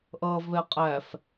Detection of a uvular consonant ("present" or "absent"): present